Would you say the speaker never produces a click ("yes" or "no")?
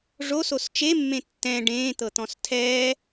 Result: yes